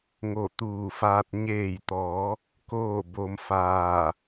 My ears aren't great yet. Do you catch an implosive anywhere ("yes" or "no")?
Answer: no